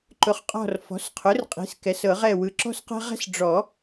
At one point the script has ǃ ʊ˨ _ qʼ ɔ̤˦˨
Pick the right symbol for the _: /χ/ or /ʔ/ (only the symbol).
χ